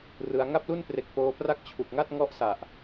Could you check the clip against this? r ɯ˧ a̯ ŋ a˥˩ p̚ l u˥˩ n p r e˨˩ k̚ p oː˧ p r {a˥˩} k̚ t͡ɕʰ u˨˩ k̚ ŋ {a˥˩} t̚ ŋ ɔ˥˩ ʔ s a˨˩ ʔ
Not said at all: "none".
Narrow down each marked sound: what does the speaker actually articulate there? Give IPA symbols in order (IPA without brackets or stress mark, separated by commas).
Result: a˥˩, a˥˩